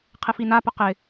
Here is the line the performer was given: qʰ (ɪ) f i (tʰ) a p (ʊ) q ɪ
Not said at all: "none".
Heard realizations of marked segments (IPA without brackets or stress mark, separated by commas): ɪ, n, ʊ